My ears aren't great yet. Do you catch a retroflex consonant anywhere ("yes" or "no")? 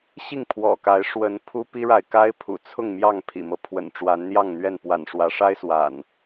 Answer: yes